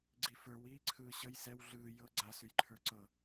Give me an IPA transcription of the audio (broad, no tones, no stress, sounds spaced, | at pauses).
ɡ͡ǀ i f ə˞ w iː ǀʰ ɯː ɕ ə j s ɛ w ɮ ɯː j ɤ ɡ͡ǀ a s ʉ j ǃʰ ə˞ ǀ ɤ